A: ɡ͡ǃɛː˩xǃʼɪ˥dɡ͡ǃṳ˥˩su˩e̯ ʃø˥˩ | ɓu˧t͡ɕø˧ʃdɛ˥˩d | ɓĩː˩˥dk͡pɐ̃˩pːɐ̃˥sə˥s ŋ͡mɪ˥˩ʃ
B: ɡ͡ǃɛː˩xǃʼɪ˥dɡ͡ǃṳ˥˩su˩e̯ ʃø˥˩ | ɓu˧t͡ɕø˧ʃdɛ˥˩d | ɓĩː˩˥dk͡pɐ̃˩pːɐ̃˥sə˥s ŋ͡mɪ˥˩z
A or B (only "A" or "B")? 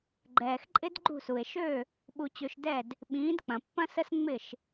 A